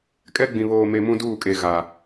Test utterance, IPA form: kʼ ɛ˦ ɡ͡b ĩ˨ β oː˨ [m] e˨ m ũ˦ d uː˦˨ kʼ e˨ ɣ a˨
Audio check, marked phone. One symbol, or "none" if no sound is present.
m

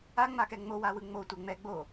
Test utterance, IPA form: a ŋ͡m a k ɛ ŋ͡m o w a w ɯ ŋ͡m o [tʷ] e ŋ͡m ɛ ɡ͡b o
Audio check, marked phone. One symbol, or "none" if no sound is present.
tʷ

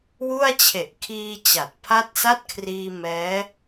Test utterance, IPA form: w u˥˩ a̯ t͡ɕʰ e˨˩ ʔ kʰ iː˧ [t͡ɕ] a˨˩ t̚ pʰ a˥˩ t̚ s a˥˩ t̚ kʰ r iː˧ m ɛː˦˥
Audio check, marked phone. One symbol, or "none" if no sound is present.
t͡ɕ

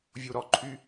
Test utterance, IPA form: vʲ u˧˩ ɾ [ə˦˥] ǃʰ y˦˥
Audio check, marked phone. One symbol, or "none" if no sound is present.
ɔ˦˥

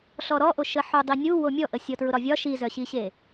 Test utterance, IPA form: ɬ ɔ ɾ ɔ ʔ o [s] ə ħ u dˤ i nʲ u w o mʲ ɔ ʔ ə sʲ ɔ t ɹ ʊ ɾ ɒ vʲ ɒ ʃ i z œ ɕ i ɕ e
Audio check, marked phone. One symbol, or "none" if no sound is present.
ʃ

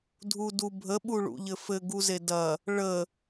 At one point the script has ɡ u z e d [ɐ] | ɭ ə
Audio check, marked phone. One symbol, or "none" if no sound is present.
ɐ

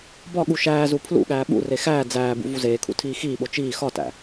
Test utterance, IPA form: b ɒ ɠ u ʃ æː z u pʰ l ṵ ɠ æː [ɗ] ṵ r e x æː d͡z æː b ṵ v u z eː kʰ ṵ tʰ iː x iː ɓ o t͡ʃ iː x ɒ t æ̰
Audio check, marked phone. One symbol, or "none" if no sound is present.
ɓ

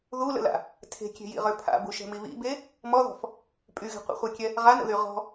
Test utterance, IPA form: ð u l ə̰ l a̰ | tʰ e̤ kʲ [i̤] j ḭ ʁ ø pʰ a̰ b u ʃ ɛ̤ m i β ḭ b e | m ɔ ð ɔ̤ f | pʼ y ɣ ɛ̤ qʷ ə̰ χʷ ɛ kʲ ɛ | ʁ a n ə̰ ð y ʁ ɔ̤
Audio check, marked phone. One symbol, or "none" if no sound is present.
e̤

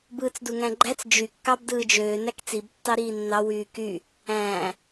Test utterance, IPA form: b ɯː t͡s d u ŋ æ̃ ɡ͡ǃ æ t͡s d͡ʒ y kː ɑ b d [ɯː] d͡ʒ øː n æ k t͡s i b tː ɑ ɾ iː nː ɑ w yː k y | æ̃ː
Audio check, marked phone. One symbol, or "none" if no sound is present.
ɯː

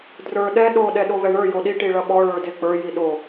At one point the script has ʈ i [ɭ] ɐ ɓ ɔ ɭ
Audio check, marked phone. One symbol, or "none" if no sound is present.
ɭ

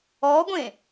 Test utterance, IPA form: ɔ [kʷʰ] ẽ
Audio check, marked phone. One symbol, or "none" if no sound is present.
ɡʷ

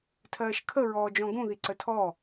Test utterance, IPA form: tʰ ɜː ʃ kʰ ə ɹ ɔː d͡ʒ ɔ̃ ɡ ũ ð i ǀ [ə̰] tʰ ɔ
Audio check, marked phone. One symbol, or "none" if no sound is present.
ə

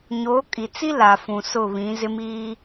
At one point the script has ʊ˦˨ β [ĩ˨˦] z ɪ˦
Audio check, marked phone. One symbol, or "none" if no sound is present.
ĩ˨˦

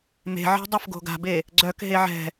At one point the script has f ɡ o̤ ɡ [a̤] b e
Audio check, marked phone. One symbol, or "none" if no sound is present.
a̤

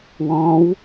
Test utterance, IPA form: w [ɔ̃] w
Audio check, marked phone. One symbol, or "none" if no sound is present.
ɔ̃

